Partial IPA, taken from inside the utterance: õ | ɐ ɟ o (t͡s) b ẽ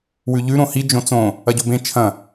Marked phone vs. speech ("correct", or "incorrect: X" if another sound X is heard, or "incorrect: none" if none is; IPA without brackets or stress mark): incorrect: none